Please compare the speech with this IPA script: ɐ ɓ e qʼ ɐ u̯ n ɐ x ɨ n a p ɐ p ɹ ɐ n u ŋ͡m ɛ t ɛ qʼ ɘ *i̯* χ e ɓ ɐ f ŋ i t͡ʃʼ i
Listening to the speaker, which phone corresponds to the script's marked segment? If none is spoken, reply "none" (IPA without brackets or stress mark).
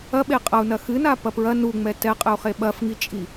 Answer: u̯